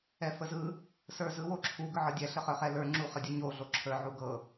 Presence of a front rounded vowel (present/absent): present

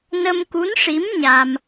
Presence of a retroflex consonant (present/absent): present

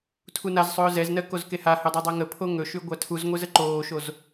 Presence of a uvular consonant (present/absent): absent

